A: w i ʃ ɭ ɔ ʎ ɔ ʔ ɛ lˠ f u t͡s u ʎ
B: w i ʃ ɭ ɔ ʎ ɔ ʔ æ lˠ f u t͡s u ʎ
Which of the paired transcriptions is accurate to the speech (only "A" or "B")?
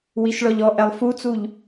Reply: A